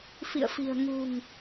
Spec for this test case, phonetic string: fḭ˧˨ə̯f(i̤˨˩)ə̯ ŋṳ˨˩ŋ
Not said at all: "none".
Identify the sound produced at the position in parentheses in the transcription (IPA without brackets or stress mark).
i̤˨˩